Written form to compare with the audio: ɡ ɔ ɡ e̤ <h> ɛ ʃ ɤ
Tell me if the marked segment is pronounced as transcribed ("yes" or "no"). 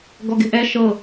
no